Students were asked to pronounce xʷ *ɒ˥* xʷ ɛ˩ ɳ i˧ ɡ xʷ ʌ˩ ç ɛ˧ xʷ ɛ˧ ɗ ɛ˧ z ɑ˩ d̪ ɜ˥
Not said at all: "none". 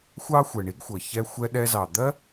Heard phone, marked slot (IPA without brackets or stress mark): ɑ˥